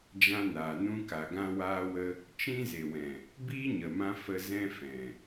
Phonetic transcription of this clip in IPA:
d͡ʒ ã˧ n aː˨ n ũ˧ k a˨ ɡ ã˧ w aː˧ w ə˧ | t͡ʃ ĩ˧ z e˨ w ɛ̃˨ | b iː˦ ɲ ə˨ m ã˧ f ə˧ z ɛ̃˧ f ɛ̃˨

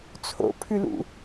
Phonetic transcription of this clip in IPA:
t͡sʰ o̰ pʰ ʉ l ṵ

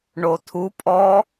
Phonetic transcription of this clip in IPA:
ɳ o tʰ u pʼ ɔ

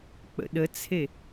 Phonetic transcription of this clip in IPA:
k͡p ə̰ ɗ ə t͡sʰ e

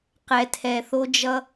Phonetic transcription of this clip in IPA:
q ɛ˨ tʰ ɛ˨ θ o˦ d͡ʒ ʌ˧

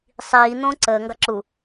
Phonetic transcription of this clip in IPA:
sˤ iː n̪ õː ǀ əː ŋ ɡ ɑ ǁ u

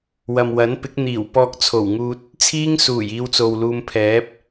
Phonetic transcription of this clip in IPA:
w ɐ˨ m w ɐ˨˥ n p ɪ˨˥ k̚ n̪ iː˨˩ w p ɔː˧ k̚ t͡sʰ o˨˩ w ŋ uː˧ t̚ | t͡sʰ iː˥ ŋ s uː˨˩ j iː˧ w t͡s o˨ w l uː˧ m pʰ ɛː˨˥ p̚

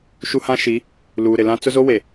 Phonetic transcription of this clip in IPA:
ʃ u˦ h ã˦ ʃ i˨˦ | l uː˨ ɾ ɪ˨ l ã˦ t͡s ʊ˦ z o˦ w e˨

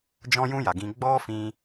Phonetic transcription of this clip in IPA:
d͡ʒ ɔ̃˦ j ũ˦ j a˨ ɡ ĩ˧ ɡ͡b ɔ˦ f ĩ˧

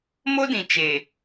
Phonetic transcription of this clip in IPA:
m o˦ d ĩ˨ t͡ʃ e˨

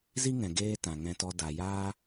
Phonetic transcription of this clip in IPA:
z i˦ ŋ ɛ̃˨ ɡ eː˦ t ã˨ ŋ ɛ̃˧ t ɔ˧ d a˨ j aː˦

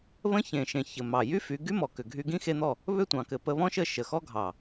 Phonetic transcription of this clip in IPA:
β ə̃˦ ç ẽ˨ ʃ ẽ˨ ç ɘ˨ m ɑ˨ j y˦ f y˨˦ ɡ y˦ m ɔ˨ k ʏ˨ ɡʱ y˧ ɡ ĩ˦ x e˧ n̪ ɔ˦˨ | β ʏ˦˨ tʷ ɑ̃˨ k ɘ˨ p ə˧ β ɔ̃˦ ʃ ə˦˨ ʃ ə˨ x ɔ˦ ɡʱ ɑ˨

